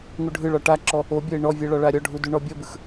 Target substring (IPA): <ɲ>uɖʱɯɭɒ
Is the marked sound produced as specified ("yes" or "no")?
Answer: no